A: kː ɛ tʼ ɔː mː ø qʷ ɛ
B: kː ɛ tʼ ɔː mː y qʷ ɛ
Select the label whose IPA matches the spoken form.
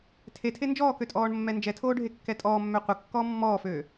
A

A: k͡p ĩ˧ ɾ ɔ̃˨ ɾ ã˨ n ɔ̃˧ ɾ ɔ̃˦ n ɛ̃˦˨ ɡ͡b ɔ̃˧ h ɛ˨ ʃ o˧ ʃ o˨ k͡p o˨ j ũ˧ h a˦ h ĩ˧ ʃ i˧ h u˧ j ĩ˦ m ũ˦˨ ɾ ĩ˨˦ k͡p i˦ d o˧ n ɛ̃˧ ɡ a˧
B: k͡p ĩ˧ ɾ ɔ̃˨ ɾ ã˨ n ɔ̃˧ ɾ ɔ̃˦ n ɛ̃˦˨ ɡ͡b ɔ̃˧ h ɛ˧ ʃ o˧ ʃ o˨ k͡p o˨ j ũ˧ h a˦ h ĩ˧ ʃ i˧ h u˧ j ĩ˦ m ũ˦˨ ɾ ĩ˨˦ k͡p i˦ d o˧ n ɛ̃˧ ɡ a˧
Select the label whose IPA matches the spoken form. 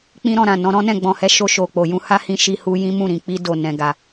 B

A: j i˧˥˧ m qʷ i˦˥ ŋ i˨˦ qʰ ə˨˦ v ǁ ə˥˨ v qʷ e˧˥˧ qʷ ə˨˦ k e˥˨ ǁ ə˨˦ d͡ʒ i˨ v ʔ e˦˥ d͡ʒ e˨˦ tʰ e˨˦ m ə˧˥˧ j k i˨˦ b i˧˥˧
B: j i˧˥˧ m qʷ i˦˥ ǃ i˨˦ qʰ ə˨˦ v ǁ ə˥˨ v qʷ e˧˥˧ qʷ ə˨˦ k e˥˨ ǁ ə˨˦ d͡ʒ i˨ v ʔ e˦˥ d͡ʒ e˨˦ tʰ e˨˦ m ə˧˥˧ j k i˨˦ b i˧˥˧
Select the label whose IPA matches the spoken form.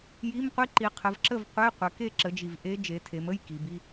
B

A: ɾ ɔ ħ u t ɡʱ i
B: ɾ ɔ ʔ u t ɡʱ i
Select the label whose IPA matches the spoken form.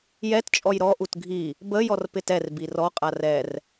B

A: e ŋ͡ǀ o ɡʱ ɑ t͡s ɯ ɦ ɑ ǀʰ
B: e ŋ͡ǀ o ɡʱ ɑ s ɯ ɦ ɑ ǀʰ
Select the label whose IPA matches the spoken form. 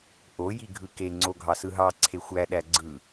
B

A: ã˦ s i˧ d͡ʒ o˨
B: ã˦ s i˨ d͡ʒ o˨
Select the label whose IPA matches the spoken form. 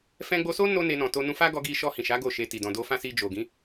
A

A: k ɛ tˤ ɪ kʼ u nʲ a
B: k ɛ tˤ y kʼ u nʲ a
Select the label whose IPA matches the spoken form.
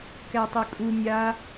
B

